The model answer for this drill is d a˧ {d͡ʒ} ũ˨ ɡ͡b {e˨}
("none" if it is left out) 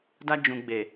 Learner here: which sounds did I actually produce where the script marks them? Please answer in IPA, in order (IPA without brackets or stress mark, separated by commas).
d͡ʒ, e˨